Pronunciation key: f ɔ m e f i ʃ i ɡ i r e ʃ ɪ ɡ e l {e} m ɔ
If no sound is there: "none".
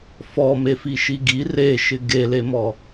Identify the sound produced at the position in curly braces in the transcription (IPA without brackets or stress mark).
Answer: e